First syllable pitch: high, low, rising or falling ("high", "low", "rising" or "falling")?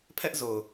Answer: high